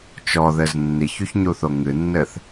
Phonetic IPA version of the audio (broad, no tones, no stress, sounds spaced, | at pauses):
t͡ʃ ɔ ð ɘ z nː i ç u ç ɲ u θ o ŋ ɨ nː ɘ θ